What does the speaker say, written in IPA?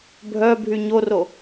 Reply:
bʱ œ bʱ y ɲ o r o

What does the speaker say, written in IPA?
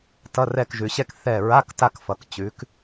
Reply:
t ʌ˧˥˧ r ɛ˦˨ k ʒ ʉ˨ ɕ ɛ˥ k θ ɛ˦˨ ɹ a˧˥˧ k t a˦˨ k f ʌ˨ k t͡ɕ ʉ˨˦ k

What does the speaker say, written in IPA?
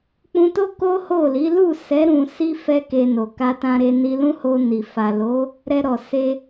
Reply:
k͡p ũ˧ t o˦ k o˦ h o˦˨ l i˨˦ l u˦˨ s ɛ˨˦ ɾ ũ˧ s i˦ f ɛ˦ k e˧ n o˨ k a˧ t ã˧ ɾ e˧ n i˧ l ũ˦ h o˧ n i˨ f a˨ l o˨˦ | ɾ ɛ˧ ɾ ɔ˨ s e˧

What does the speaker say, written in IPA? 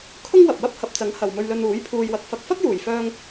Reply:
kʰ ʊ˥ ŋ w ɐ˨ p̚ w ɐ˥ p̚ h ɐ˨ p̚ t͡s ɐ˨˥ ŋ h ɐ˨ w m ɵ˧ ɥ l ɵ˧ n uː˨˥ j pʰ uː˧ j w ɐ˨˥ k̚ f ɐ˧ k̚ f ɐ˥ k̚ j uː˨˩ j f œː˧ ŋ

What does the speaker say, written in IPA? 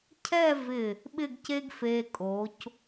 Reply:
cʰ ɛ˥˧ v ɪ˧˩ | ɓ ɪ˥˧ ɡ c e˥ ɡ f e˧ kʼ o˩˧ c

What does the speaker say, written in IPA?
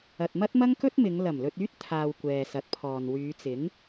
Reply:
ɐ˨ t̚ m ɐ˥ t̚ m ɐ˥ ŋ k ɵ˥ t̚ m ɪ˨˧ ŋ l ɐ˨˩ m l ɵ˧ t̚ yː˥ t̚ t̪ʰ aː˧ w kʷ ɛː˨ s ɐ˨˥ t̚ pʰ ɔː˨ n w yː˨˧ t͡s ɪ˨˥ ŋ

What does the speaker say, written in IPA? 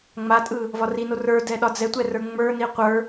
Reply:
ŋ͡m a tʼ ɯ | v ɒ r i n o r ə˞ d ɛ ɗ ɒ d͡z ɛ tʷ ɛ r ə˞ ŋ͡m ə˞ n i qʷ ə˞

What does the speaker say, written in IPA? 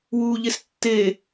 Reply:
w uː ʎ e s tː e

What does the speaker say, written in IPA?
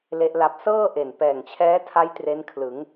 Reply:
l e˦˥ ʔ l a˦˥ p̚ s ɤː˥˩ ʔ e˨˩ n p ɛː˨˩ ŋ t͡ɕʰ ɛː˦˥ tʰ a˦˥ j t r e˦˥ n kʰ l ɯ˩˦ ŋ

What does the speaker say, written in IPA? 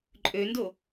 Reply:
ǃʼ ø n d o

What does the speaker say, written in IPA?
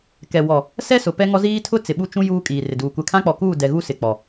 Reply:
k ɛ˨ w ɔ˨ | s ɛ˦ s ʊ˨ p ɛ˦ ŋ ɔ˦ z iː˦ tʰ ʊ˦ t͡s ɪ˨ ɓ u˦ t͡ʃ ũ˦ j uː˦ kʼ iː˨ r ɪ˨ d uː˨ kʷ ɛ˨ kʰ ã˦ k͡p ɔ˨ k uː˦˨ d ɛ˨ ɣ u˦ s ɪ˨ k͡p ɔ˨

